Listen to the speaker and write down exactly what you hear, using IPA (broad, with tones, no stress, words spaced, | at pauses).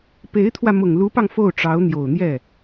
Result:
pe˧˥ɪ̯t̪ʰwä˧ mʊ˨˩ŋlu˧˥pɑ˧ŋ fo˥˩ʊ̯ʈ͡ʂɑ˧˥ʊ̯ n̪jo˨˩ʊ̯n̪jɛ˥˩